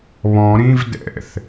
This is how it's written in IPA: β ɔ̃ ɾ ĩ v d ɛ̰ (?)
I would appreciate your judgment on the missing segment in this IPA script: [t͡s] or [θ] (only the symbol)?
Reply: θ